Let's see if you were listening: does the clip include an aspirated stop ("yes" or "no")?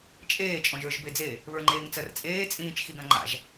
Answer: no